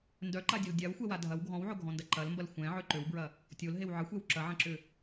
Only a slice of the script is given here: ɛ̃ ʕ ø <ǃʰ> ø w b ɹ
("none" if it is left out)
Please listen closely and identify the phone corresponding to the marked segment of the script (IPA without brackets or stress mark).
ǃ